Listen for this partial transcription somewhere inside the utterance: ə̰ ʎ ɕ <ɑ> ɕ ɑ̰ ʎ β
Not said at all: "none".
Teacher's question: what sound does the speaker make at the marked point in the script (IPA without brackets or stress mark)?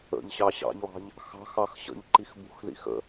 ɑ